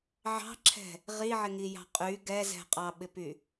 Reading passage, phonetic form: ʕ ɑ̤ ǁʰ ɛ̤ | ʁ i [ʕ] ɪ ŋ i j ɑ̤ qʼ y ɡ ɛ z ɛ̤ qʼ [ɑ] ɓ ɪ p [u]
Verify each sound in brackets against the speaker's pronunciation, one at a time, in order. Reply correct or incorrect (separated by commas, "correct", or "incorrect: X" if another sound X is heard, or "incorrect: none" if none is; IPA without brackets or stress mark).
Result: correct, correct, incorrect: y